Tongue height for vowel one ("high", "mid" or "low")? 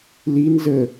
high